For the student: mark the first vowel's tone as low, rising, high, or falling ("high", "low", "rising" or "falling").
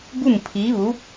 falling